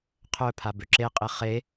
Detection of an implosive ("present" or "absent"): absent